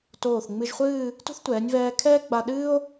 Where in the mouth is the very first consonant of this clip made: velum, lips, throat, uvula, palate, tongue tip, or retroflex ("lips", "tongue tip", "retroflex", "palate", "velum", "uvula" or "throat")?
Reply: tongue tip